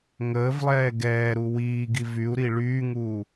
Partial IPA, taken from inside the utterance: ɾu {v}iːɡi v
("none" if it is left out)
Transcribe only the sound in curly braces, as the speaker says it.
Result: w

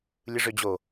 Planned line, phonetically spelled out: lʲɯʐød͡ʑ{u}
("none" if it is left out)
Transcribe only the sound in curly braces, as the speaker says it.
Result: o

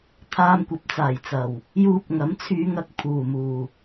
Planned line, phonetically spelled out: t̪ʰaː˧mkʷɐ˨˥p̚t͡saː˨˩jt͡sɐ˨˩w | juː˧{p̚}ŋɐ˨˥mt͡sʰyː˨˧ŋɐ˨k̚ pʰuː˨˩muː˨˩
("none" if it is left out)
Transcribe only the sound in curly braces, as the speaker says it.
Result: p̚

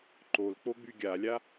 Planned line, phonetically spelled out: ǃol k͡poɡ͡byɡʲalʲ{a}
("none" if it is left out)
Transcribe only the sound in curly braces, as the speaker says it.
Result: a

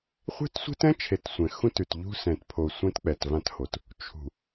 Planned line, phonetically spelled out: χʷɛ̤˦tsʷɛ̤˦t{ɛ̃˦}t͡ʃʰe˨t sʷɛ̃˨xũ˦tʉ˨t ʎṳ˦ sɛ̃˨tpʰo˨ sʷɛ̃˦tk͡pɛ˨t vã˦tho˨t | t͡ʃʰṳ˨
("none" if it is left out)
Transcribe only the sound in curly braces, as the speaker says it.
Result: ɛ̃˦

